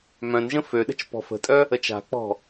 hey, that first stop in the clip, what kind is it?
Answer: implosive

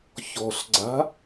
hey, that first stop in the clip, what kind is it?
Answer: click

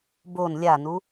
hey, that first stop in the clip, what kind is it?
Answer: plain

